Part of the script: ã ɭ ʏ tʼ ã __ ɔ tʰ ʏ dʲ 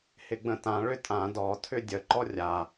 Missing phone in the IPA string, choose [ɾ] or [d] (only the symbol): d